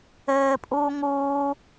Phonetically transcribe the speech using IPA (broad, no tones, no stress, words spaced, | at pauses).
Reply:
ɘːpʼuː ŋuː